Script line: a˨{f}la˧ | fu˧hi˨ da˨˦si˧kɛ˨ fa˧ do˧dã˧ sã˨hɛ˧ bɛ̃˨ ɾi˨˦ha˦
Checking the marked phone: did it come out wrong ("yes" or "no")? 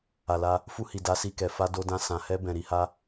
yes